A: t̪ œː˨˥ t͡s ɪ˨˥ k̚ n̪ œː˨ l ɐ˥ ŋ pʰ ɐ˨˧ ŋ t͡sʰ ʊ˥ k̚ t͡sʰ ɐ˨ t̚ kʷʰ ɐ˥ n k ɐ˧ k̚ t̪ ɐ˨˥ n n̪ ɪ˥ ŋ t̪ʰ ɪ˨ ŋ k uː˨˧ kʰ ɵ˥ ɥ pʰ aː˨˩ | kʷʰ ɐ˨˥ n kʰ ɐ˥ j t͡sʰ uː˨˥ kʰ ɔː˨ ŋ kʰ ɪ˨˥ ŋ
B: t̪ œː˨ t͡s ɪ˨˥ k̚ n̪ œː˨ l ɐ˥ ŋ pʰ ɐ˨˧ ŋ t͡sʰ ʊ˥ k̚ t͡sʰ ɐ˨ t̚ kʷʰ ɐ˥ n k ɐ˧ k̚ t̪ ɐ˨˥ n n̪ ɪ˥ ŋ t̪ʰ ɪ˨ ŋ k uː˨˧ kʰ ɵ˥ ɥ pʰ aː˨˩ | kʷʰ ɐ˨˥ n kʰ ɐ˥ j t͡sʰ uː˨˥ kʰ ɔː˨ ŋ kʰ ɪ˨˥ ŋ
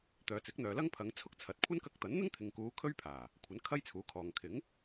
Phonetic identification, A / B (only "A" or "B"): B